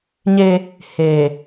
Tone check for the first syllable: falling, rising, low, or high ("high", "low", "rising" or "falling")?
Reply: high